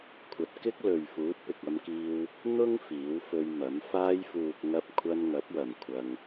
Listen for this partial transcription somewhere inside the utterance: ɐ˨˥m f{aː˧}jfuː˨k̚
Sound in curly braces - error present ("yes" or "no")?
no